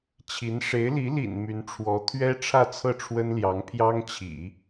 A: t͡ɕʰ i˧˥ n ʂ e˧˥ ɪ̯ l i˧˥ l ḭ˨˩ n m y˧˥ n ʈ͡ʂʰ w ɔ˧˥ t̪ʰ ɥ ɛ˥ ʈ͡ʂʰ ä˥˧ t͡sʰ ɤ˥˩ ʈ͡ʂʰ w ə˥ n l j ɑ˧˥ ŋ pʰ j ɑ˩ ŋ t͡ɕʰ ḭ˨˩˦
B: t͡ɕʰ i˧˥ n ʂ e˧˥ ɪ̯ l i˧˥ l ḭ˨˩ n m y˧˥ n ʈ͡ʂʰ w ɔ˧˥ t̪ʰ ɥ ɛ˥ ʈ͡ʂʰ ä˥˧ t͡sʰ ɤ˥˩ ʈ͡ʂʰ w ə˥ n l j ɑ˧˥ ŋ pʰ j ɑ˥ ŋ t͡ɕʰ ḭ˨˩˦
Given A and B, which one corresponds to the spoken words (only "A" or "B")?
B